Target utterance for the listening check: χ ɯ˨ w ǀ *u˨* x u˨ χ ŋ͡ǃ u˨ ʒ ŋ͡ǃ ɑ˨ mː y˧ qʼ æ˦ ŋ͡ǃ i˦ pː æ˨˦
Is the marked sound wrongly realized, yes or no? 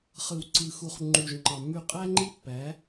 yes